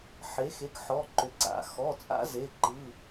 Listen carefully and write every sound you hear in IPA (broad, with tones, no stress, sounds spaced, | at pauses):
ħ e˩˥ x e˩˧˩ k ħ ɔ˩˧˩ ǃ ʏ˩˥ ǀ a̰˩˧˩ x ɔː˩˧˩ t͡sʼ a̰˦ z e˩˧˩ ǃ ɯ˩˧˩